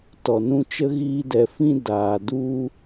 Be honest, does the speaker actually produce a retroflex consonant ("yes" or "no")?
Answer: no